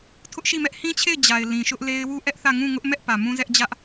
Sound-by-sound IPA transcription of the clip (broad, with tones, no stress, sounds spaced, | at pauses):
tʰ ʊ˦ ʔ ʃ i˦˨ m ɛ˦ ʔ h ĩ˦ t͡ɕʰ e˦˨ ɪ̯ d͡ʑ a˨ ɪ̯ l ĩ˨ ʃ ʊ˦ ʔ l e˦ ɪ̯ w u˦ ʔ ɛ˦ ʔ θ ä˦˨ ŋ ũ˦˨ ŋ ʊ˦ ʔ m ɛ˦ ʔ p ä˨ m ũ˦ z ɛ˦ ʔ d͡ʑ ä˦ ʔ